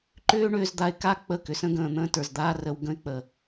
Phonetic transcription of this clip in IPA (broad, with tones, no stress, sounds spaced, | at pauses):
ǃ ʏː˦ ɳ ʏː˧ z d̪ a˧ ɪ̯ k a˦ k͡p ə˦˨ k ʏ˨ s ə̃˦ ɡ ə̃ː˨ n̪ ə̃ː˦ t ə˞˨ z d̪ aː˦ r ə˧ w ɡ ə̃˦ ɪ̯ k͡p ə˨